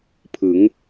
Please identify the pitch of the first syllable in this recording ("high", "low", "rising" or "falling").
rising